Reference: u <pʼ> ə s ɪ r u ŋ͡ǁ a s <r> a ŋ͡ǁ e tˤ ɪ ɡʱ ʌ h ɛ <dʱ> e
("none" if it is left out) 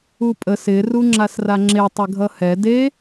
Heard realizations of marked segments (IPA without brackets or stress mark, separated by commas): pʼ, r, d